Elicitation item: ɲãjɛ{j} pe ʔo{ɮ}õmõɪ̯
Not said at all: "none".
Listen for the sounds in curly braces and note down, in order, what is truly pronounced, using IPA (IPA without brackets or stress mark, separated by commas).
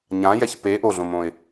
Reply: ç, ɮ